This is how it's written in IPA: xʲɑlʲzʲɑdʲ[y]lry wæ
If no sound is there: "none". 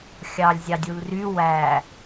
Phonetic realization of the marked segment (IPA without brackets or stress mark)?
u